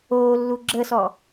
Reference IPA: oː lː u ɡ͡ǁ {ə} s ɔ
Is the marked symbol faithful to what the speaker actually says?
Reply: yes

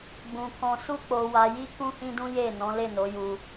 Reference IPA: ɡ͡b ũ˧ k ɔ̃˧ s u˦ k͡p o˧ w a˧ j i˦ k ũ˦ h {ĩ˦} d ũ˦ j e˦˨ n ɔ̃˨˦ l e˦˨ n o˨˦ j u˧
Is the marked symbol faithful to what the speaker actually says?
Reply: yes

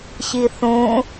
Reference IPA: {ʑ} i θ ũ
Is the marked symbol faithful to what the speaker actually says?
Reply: no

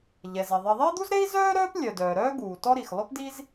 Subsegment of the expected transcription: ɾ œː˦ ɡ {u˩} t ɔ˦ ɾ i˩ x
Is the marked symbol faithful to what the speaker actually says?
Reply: no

